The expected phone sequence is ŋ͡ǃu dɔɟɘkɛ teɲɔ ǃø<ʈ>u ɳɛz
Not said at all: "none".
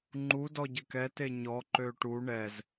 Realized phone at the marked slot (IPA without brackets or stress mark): ʈ